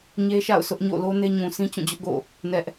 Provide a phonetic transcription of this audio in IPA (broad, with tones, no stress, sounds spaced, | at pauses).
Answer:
ɲ e˦ ʃ a̰˦˨ ʊ̯ s ʊ˦ ʔ ɲ o̰˦˨ l o˦ n e˦ ɲ ũ˨ sʰ ĩ˦ t͡ɕ ũ˦˨ d͡ʑ ʊ˦ ʔ ɡ o̰˦˨ | n ɛ˦ ʔ